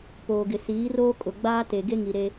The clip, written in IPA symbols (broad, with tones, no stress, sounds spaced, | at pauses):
p oː˨ ɡ ɪ˨ s iː˨˦ r oː˦ kʼ ʊ˨ ɡ͡b aː˦ t e˨ ɡ e˦ ŋ i˨ ɾ e˦